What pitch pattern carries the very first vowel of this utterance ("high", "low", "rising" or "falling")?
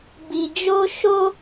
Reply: low